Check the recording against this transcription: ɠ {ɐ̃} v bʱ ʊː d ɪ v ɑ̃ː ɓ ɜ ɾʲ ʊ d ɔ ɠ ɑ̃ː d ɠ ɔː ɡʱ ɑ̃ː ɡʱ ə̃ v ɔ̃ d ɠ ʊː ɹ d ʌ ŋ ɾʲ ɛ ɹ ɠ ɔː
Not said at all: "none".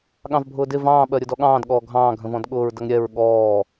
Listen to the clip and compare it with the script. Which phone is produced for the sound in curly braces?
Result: ɑ̃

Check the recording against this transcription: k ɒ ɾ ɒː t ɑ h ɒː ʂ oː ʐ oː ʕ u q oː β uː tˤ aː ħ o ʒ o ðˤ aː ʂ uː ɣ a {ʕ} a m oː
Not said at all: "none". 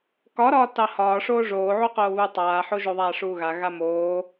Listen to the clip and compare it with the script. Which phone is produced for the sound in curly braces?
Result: ɣ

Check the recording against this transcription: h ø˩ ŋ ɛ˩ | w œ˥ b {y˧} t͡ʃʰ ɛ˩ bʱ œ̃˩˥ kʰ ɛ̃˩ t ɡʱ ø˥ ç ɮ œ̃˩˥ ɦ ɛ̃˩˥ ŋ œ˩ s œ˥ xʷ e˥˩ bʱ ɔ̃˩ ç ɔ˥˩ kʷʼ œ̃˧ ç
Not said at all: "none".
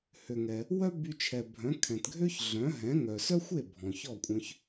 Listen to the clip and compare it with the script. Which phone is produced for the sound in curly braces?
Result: y˧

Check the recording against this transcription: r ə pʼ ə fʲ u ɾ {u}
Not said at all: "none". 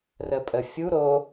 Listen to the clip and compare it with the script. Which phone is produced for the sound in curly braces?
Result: o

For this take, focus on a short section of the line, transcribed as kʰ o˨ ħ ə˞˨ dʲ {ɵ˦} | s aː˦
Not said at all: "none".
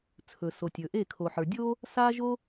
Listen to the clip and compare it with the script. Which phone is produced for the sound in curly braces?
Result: o˦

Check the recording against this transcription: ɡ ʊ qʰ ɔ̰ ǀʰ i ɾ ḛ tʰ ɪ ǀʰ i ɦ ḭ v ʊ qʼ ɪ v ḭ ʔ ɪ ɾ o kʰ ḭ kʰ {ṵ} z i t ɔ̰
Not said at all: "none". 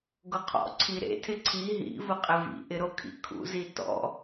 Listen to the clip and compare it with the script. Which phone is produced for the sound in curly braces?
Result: ṵ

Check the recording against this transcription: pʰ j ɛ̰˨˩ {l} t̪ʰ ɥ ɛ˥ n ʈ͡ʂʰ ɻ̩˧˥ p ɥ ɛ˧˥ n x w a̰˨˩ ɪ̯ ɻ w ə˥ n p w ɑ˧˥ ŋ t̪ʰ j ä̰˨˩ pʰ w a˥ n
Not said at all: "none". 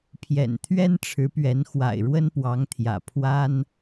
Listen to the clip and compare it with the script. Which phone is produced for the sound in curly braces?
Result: n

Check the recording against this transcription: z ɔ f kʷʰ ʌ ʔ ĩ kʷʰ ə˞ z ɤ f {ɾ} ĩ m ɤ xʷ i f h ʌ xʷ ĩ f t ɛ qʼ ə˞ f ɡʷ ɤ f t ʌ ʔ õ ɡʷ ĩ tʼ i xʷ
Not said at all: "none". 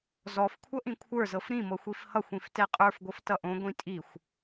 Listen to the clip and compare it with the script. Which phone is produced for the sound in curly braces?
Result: ɾ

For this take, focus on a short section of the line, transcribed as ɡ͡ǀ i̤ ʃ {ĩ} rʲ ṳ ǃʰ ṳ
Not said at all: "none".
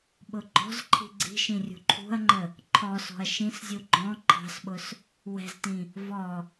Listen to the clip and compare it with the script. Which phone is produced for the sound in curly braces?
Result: ĩ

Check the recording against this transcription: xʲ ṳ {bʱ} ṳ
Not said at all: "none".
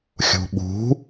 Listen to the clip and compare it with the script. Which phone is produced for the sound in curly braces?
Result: ɓ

